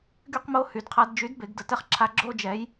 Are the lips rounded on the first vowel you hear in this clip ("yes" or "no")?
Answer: yes